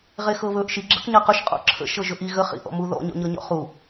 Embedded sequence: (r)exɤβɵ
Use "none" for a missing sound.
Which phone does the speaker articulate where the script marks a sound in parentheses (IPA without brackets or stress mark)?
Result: ʁ